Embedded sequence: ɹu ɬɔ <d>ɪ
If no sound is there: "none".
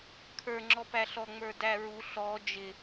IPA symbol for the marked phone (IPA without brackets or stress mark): d͡ʒ